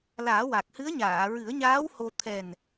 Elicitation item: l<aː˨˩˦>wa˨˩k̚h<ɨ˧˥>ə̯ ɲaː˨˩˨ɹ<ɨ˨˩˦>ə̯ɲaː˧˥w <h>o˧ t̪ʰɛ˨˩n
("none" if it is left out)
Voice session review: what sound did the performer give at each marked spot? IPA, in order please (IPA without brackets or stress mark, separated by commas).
aː˨˩˦, ɨ˧˥, ɨ˨˩˦, h